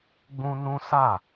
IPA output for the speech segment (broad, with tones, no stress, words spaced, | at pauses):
ɡ͡bũ˦nũ˦ sa˦˨